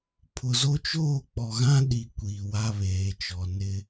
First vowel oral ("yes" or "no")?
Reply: yes